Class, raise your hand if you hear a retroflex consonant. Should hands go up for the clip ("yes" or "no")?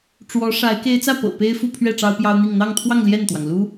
yes